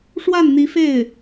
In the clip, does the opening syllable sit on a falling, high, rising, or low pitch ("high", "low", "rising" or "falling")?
falling